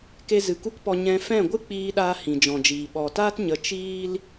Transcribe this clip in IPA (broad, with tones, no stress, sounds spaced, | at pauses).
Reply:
k e˦ z ɨ˨ k u˦ k p ɔ˧ ɲ ɛ̃˧ f ɛ̃˦˨ ɡʷ ɨ˦ k͡p iː˧ ɗ aː˧ h ĩ˨ d͡ʒ ɔ̃˨ d͡ʒ iː˨ ɓ ɔ˨ t aː˦ t ɲ ə˨˦ t͡ʃ iː˦ l